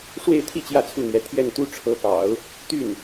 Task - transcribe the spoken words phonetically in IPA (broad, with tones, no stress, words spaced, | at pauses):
ʂwe˥˧ɪ̯t̪ʰi˥˧ t͡ɕjä˥˧t͡sʰu˥˩n̪ɥɛ˧˥ t̪ʰjɛ˥˩nt̪u˥ʈ͡ʂʰɤ˧˥pɑ̰˨˩˦ʊ̯ | t̪y˥˩n